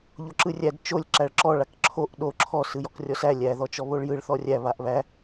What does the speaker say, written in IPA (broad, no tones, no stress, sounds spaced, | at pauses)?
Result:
ʎ o ǁ ɯ rʲ æ d t͡ʃ o lʲ ǁ æ ɭ ǁ ɔ ɭ a k ǁʰ o ʔ ɗ o ǁʰ ɔ s ɯ j ɔ k rʲ ɔ s æ lʲ æ ð ɔ t͡ʃ ɔ β o ɭ j ɯ ɭ θ ɔ rʲ æ β a ʔ β æ